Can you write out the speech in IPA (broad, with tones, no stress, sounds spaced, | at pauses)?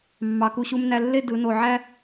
mː ɑ˩˧ k u˩˧ ɕ u˧ m n æ˧ lː e˥˧ d ɯ˩˧ n o˧˩ ʕ æ˥